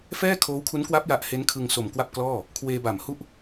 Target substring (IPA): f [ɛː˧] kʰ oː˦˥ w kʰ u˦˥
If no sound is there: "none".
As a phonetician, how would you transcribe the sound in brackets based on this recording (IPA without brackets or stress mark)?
ɛː˥˩